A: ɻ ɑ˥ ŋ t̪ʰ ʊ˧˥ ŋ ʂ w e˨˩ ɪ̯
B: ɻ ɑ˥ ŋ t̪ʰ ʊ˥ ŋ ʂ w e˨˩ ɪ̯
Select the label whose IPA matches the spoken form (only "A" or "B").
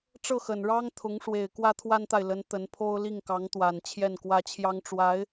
A